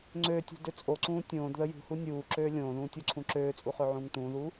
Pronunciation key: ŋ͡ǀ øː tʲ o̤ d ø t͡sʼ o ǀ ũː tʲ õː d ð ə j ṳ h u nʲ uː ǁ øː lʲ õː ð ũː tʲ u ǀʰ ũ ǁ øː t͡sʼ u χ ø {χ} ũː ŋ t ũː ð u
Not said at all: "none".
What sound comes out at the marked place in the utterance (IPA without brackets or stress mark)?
ʕ